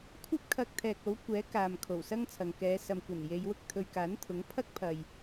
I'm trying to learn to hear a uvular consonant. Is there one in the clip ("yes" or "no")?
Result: no